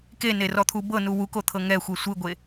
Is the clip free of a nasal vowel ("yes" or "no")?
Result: yes